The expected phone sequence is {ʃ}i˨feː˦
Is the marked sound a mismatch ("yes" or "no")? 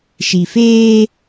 no